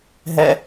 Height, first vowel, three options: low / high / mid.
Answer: mid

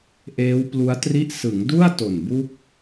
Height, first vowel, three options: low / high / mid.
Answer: mid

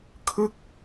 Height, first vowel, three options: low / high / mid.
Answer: high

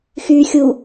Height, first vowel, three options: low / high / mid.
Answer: high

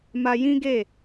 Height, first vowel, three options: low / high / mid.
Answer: low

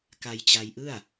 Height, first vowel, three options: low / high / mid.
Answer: low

